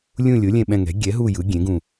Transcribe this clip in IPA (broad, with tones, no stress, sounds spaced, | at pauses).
lʲ ũ˦˨ lʲ o˩˥ lʲ ɛ̃˦˨ ɓ ɛ̃˦˨ ŋ ɛ̤˩˥ ɡʲ ɛ˩˥ ɦ u˦˨ j ɯ˩˥ ɡʲ ẽ˩˥ ɡ ũ˦˨